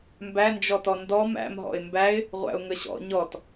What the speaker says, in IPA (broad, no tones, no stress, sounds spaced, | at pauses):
m b æ n d͡ʒ ɔ t ɔ n d ɔ m æ̰ m ɦ ɔ̰ ɪ̯ m b æ ɪ̯ | ʁʷ æ̰ ʊ̯ ŋ ə ɕ ɔ̰ ɲ ɔ t